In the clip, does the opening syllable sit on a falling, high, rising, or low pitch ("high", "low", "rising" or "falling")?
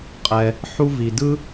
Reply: low